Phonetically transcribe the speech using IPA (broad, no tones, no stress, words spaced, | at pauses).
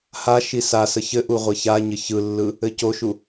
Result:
ha ʃisasə çɘʔu ʁʷɘçaɲɘ çɯlːɯ | ɘcoʃu